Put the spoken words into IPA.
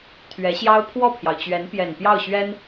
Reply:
t̪ʰ ɥ ɛ˧˥ ɕ j ɑ˥ ʊ̯ pʰ w ɔ˥˩ pʰ j ɑ˩ ʊ̯ t͡ɕ ɥ ɛ˧˥ n p j ɛ˨˩ n p j ɑ˥˩ ʊ̯ ɕ ɥ ɛ˥ n

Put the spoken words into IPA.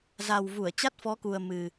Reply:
z a˨˩ w v u˧˩ ə̯ t͡ɕ a˦˥ t̚ f ɔ˨˦ k u˨˩ ə̯ m ɨ˨˩

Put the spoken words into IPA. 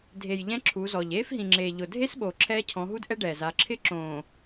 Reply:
dʱ e˨ j ʎ ɛ̃˦ ǁʰ u˨˦ z ɔ˨ ʎ eː˦ f ɦ ĩ˨ ŋ͡ǁ eː˨ ʎ ʊ˨ dʱ e˦ s ɓ o˨ ǁʰ ɛː˦ cʰ ɔ̃˨˦ ɦ u˦ d ʔ ɛ˦ ɖ ɛː˨ z a˨˦ ǁʰ ɪ˦ ǁ õː˨

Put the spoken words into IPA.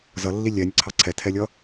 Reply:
z ʌ lː i lʲ ɛ nʲ ə ǀʰ ɑ ǀʰ ɛ tʰ ɛ lʲ ʌ

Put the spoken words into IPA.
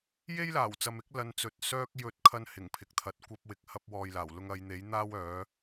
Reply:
j e˥ j l aː˨˩ w t͡s ɐ˨ m ɪ˨˥ k̚ l ɐ˨˧ n t͡s ɵ˨ t̚ s œː˥ k̚ j ɵ˧ t̚ kʰ ɐ˥ n h ɪ˨˩ ŋ pʰ ɪ˨ k̚ t̪ʰ ɐ˨˥ t̚ kʷ ɐ˧ p̚ w ɪ˨˥ k̚ h ɐ˧ p̚ w ɔː˨ j l aː˨˩ w l ʊ˧ ŋ ɐ˨˧ j n̪ e˨˥ j n̪ aː˥ w œː˨˥

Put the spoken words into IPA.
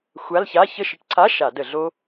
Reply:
xʷ a˧˥˧ l ç a˧˥˧ ç ə˦˨ ʃ ə˧˩˧ ʈ ǀʰ a˧˥˧ ʃ a˧˩˧ d ə˧˩˧ ɮ o˦˥

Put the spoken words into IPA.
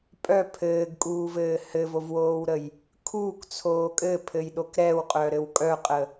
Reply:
pʼ œ pʰ ɘː ɡ kʼ uː v ɘː h ɘ v o v w oː w ɾ ə j | kʰ uː k t͡sʰ oː kʼ ɘ pʰ ɘ j ɗ o k ɾ ɛ w qʼ œ ɾ ɘ w kʼ œ qʼ ə

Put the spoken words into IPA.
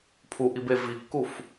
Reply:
pʰ u ʔ i b e v i kː u f

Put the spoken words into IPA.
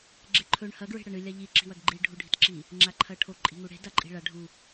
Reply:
ɡ͡ǁ e ǃʰ ɵ ɳ h ɐ ɡ ɹ e̤ ɽ ɐ ɳ ɨ lʲ a ʎ i ǁ i̤ w ɐ ɡ ɡ͡ǃ i ɖʱ u ɖʱ i̤ t ǁ i | ŋ͡ǁ a ǃʰ ɐ ʈʰ o ǃʼ i̤ ŋ u ɽ e̤ d a ǃʼ i̤ ɭ a ɖʱ u

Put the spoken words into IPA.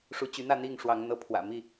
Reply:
ʂ u˨˦ t͡ɕ y˨˦ n̪ ä˥˨ n̪ i˥˨ ŋ ʂ w ɑ˨˦ ŋ n̪ ɤ˨˦ pʰ w ä̰˨˩ m i˥˨

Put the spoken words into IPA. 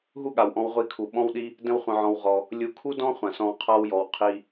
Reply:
ɦ u˦ ɠ a˨ w ʔ ɔ̃˧ w ʁʷ i˧ kʰ u˨ ɓ ɔ̃˦ w ɗ i˦ | d ə̃˧ w χʷ ə̃˨ ʕ ɔ̃˨ w ʁ ɔ˨ | lʲ u˨˦ kʰ u˦ d ɔ̃˦ χʷ ã˨ s ɔ̃˧ w qʰ a˦ w j ɔ˨ w qʰ i˧

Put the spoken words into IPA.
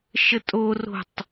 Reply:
ʃ ə tʼ o r o̤ tˤ

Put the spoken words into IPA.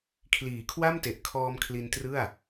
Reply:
kʰ l iː˨˩ kʰ w a˥˩ m t e˨˩ ʔ kʰ ɔː˧ m kʰ l i˧ n t r ɯ˥˩ a̯

